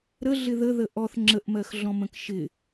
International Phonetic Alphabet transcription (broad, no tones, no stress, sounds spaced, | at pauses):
ɾ ə ɮ ɪ ð ə ð ə ʔ ɔ θ ŋ͡ǁ ə ʔ m ɜ x ɮ ɔ̃ m ə̃ k ʃ ɪ